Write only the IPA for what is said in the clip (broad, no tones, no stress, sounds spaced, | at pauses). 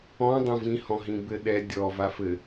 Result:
ɔ̃ dˤ õ v ĩ h ɔ̃ ɦ ĩ b ɘ ɗ ɛ dʲ ɔ v a f ɘ